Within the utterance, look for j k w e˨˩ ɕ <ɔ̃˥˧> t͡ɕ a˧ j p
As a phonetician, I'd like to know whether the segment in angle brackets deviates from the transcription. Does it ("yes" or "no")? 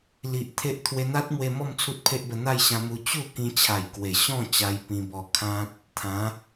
no